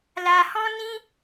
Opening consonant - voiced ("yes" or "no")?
yes